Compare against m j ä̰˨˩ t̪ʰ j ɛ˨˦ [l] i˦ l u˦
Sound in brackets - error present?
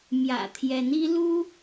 yes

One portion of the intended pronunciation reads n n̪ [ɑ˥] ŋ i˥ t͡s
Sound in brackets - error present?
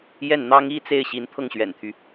no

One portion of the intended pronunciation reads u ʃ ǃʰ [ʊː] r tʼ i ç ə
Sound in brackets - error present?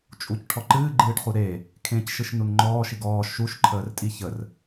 yes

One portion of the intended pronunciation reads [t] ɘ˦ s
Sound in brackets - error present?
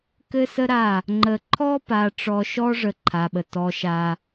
yes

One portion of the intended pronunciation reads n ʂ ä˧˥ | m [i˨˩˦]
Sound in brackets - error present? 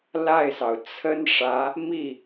yes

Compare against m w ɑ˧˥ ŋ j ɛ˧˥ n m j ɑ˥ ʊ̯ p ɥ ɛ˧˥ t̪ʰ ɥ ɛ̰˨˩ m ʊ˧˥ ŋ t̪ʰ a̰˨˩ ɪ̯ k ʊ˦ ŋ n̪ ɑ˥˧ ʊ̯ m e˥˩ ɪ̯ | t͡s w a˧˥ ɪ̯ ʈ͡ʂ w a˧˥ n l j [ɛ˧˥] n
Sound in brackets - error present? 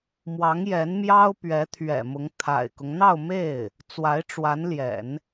yes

